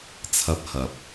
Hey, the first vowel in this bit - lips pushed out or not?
no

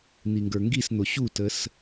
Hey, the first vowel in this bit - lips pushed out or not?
no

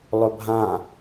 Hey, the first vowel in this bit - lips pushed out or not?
yes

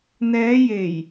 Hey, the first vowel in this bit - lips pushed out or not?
no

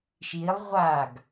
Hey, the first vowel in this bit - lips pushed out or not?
no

